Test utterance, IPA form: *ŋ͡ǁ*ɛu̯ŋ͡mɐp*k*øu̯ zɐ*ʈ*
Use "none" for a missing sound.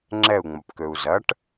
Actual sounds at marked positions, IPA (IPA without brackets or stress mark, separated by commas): ŋ͡ǁ, k, ʈ